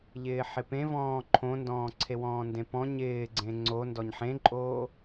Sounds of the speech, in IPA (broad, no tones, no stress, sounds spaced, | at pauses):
ʎ ɪː ħ ɪ p ẽ v ɔ̃ː ǃʰ õ n d ɔ̃ː ǀʰ e w ɔ̃ː n d ẽ p ɔ̃ ɲ ɪː ɡ͡ǀ ẽ ŋ͡ǀ o n d ɔ ɲ ħ ẽ ǃʼ oː